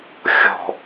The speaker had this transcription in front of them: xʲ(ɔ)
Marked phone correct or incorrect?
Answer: incorrect: ɔ̤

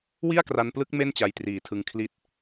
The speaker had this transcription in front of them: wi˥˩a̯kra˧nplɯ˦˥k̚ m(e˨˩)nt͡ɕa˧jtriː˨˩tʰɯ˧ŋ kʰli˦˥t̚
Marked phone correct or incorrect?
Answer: incorrect: e˥˩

